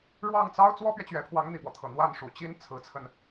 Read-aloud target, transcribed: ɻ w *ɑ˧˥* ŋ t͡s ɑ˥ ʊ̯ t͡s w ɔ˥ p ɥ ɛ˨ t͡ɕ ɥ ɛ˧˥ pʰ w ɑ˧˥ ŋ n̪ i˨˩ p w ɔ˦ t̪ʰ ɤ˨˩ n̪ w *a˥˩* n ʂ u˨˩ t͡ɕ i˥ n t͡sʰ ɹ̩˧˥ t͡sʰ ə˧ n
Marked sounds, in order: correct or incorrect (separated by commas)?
incorrect, correct